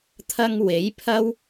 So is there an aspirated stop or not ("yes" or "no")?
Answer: yes